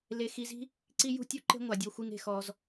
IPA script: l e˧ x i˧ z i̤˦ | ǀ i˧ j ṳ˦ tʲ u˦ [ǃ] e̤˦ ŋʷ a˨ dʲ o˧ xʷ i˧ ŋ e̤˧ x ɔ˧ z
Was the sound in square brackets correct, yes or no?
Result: yes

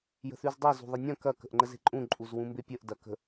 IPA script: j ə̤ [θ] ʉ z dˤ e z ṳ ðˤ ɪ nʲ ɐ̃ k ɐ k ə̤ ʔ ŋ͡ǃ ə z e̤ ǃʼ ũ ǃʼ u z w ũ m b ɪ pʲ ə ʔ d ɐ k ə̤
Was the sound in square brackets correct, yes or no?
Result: yes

